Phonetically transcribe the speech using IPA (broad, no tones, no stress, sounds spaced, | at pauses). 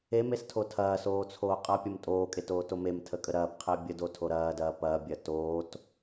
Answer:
e m e s tʰ o tʰ ɐː s oː t͡sʰ oː qʼ ɐ pʲ ɐ m tʼ oː kʼ e t oː t o m e m tʰ ə kʼ ə ɾ ɐː p qʰ e bʲ ə d o tʰ o ɾ ɐː d ɐː p ɐː bʲ ɐ t oː t